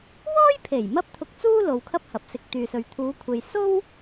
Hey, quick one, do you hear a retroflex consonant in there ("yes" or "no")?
no